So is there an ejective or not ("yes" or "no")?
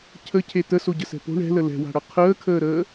no